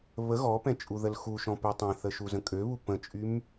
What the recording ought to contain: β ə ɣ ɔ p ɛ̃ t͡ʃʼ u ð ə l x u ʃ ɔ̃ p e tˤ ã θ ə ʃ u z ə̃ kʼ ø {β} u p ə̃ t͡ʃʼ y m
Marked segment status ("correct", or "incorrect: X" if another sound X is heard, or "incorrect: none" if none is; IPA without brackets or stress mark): correct